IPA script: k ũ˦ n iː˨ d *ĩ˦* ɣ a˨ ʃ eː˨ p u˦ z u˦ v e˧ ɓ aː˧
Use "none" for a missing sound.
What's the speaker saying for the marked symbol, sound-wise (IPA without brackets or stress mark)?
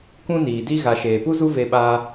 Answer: i˦